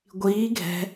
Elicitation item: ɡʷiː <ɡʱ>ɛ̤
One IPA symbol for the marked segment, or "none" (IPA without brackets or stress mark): ɡʱ